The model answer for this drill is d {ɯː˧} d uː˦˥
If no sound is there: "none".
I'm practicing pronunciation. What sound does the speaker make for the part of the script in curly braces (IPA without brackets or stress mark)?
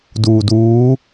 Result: uː˧